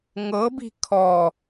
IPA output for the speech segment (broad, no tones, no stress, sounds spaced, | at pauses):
ŋ ɤ b i̤ kʰ ɔ